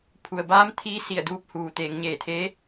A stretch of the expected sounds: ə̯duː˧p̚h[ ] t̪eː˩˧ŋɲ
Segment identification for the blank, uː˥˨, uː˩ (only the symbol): uː˩